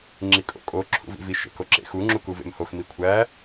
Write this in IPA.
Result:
ŋ͡ǁikʼo̰kʼo ǁʰṵvḭvi ʃḛkoǁḛxu ŋ͡ǁukuvḛmhox mikʷʰæ

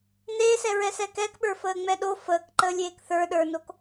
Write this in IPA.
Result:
neːsɛɹɛsɛːk ɛkɓə˞fəːŋ͡mɛ ɗo fəːkǃəːlʲeːk θə˞ ɗə˞nok

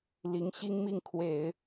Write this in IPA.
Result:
li˧˥ŋɕi˥ŋ mi˥˩ŋkʰwe˨˩˦ɪ̯

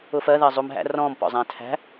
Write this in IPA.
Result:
ʊfɜ ðɜzˤumɦæ̰ rɔ̃m pɔ̰zˤæ̃tʰæ̤

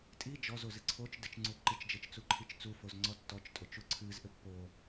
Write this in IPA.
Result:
tʼi d͡ʒɔzozɨ ǀʰot͡ʃ dɨt͡ʃŋ͡ǀu ǃit͡ʃd͡ʒɘt͡ʃt͡suǃʰit͡ʃ t͡sufozŋ͡ǀɔ tːɔt͡ʃtʼot͡ʃu ǀʰɨzʔɘ pːo

